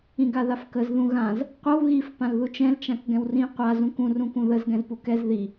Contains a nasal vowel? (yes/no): yes